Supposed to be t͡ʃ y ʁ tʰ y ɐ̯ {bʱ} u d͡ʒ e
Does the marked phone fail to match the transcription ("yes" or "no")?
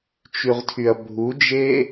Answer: no